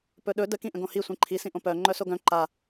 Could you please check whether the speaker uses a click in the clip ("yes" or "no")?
yes